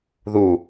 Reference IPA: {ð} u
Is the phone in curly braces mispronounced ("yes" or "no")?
no